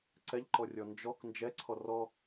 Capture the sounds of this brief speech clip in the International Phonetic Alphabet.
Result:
ǀ ɛ ʎ ǃ ɔ rʲ ɔ n d͡ʒ ɔ k n d͡ʒ ɛ ǀʰ ɔ r ɔ

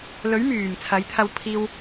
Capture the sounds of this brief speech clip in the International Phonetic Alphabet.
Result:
l ɵ˨˥ ɥ m yː˨˩ m t͡sʰ ɐ˨˥ j t̪ʰ ɐ˧ w pʰ iː˧ w

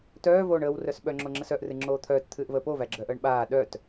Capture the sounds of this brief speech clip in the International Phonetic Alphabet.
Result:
t œː v oː ɳ əː w r œ s ɓ œ ŋ͡ǁ o ŋ͡ǁ ə s œ ʔ r ɨ ŋ͡ǁ oː t̪ʰ œː t t̪ʰ ɨː ʔ v əː p o v æ ɡ͡ǁ œ ʔ əː ɳ ɓ aː ɗ œ t

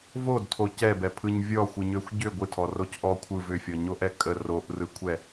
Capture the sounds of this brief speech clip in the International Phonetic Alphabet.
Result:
v o d tʰ o c ɛ b ɛ pʰ ɯ ɲ vʲ ɔ xʷ ɨ ɲ ø xʷ ɟ ʏ ɡʷ ɨ tʰ ɔ r o c ʔ ɔ kʷʰ ɯ v ʏ fʲ ɔ ɲ o ʔ ɛ kʼ ə r o ʔ r ɯ kʷʰ ɛ

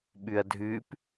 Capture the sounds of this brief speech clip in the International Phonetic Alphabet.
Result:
ɓ ʉ ɐ̯ dʱ ʉ p

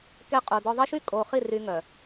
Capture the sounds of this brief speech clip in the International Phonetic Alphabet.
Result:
k ɛ˦ qʼ o˨ d ɔ˦ ðˤ ɛ˦ ʃ y˦ kʼ o˨ χ i˦˨ r y˦ ŋ œ˨

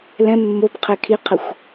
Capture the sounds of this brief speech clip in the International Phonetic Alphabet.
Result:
l ɛ̃ mː o b qʰ ɛ kʰ i qʰ ə xʷ

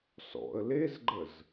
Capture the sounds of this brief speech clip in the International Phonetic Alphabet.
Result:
s ɔ̰ ə̯ l e z ɡ͡ǃ ə z

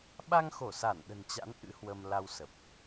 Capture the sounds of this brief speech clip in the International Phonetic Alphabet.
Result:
ɓ a˧ ŋ x o˧˩ s a˧˩ n ɗ ə̤˨˩ n t͡ɕ a̰˧˥ n ʔ ɨ̰˧˥ h w ə˧ m l a˧ w s ə˨˩ p̚

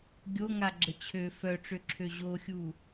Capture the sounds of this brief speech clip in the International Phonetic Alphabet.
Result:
ɡʲ o ŋ a ɡ͡ǁ ə t͡ɕʰ ø f œ ʈ͡ʂ ø ǁʰ ø ʑ o xʲ u

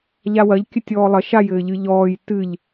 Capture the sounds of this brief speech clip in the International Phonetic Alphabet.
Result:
ʎ a w ɐ ʎ kʲ ɘ tʲ ɔː lˠ ɐ ʃ a j ɘː ʎ ɨ ʎ ɔː j t ɨ ʎ

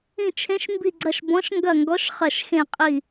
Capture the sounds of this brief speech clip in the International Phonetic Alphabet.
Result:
ĩ˧˩ t͡ʃʰ ẽ˨˦ ʃ m b i˧˩ ɡ͡ǀ ɐ˧˩ ʃ b ɔ̃˨˦ ʃ ŋ ɡ ɐ˧˩ ŋ ɡ ɔ˨˦ ʃ χ ɐ˧˩ ʃ x ẽ˧˩ qʼ i˧˩

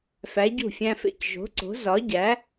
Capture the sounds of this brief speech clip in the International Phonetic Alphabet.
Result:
f æ˨˥ ɟ ṳ˥˩ fʲ æ̃˦ f ḛ˥˩ c ʒ o̤˨˥ ǀ o̤˨˥ z ɒ˨˥ ɟ æ˨˥

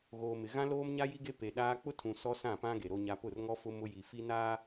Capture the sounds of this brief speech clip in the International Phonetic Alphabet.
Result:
ɣ oː˨ m ɪ˨ ɣ ã˦ l oː˦ m ɲ a˦ j i˦ ɡ e˦ p e˨ ɗ aː˦ k͡p ʊ˦ tʰ ũ˨ s ɔ˦ s ã˦˨ p ã˦ ɡ e˨ ɾ o˦ ɲ a˦ p ʊ˦˨ r ŋ ɔ˦ f ʊ˦ m ʊ˦ j i˨ f i˦ n aː˦

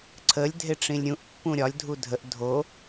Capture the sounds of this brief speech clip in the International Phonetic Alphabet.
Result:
ǀʰ ə lʲ dʱ e ʈ͡ʂ ĩ lʲ ɾʲ ũ ʔ pː ũ ɾʲ ɒ lʲ dʱ u dʱ ə ʔ dʱ o

